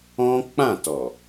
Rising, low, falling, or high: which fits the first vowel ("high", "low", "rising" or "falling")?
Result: high